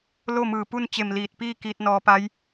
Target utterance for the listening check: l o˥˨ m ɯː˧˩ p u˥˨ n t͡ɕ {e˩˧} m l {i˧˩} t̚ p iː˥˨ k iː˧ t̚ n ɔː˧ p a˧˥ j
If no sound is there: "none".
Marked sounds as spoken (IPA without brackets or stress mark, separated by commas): e˧˩, iː˧˩